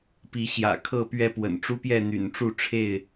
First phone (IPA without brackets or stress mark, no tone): p